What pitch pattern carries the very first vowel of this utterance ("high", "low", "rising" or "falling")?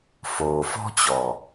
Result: low